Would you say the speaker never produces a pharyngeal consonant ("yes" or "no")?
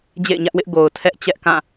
yes